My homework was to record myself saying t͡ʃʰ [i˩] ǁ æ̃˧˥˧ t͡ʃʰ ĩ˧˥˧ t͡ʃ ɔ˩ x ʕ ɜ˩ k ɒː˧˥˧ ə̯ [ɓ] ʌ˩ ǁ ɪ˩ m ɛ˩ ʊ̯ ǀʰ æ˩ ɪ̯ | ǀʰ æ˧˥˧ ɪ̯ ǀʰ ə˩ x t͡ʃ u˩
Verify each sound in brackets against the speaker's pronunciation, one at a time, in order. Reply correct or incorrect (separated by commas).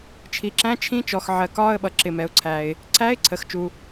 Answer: correct, correct